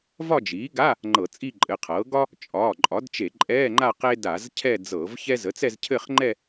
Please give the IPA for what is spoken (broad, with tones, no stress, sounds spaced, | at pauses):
v ɒ˥˧ d͡ʒ iː˩˥ ɡ a˧˥˧ | ŋ͡ǃ ɤ˧˩˧ t͡sʼ i˥˧ ǃʼ ɘ˩˧˩ qʰ ɤː˩˥ ɡ ɒ˥ | t͡ʃʼ ɒː˩˧˩ ǃʼ ɒ˩˥ d t͡ʃ e˧˩˧ ǃʼ ɛː˧˥˧ ŋ͡ǃ a˥˧ q e˥ d a˧˩˧ z cʰ ɛ˥˧ d͡z ɤː˧˩˧ v ç ɛ˥ z ə˩˥ t͡s ɛ˥˧ z cʰ ɘ˥˧ χ ŋ͡ǃ ɛ˥˧